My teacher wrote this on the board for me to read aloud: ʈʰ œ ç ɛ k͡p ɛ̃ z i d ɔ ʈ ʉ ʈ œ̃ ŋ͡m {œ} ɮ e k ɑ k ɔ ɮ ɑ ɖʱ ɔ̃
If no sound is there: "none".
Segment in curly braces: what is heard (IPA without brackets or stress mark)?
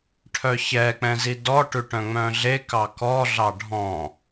œ̃